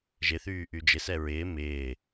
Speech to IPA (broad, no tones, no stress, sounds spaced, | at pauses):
ʒ ɪ θ yː ʔ y d͡ʒ ɪ s ɛ ɹ ɪː m ɪː